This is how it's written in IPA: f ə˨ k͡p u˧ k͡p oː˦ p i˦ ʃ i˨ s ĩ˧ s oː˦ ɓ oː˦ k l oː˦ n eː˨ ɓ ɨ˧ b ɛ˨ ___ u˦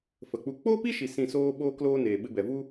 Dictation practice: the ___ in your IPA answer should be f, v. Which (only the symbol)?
v